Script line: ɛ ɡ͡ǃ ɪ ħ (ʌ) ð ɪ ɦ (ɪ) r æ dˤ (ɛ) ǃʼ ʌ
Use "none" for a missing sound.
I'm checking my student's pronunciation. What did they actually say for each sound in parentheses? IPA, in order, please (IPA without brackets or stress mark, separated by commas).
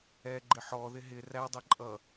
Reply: ɔ, ɪ, ɛ